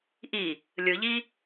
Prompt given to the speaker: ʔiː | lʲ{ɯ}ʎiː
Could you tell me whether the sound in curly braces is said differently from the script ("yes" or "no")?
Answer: no